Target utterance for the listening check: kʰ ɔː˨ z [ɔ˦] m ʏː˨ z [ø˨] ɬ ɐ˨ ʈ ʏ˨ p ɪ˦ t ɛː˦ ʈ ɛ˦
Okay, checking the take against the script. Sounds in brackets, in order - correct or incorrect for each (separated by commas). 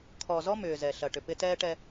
correct, incorrect